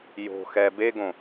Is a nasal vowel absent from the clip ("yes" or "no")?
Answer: no